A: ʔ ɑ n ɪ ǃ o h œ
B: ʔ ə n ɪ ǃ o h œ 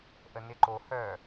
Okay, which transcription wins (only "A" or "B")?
B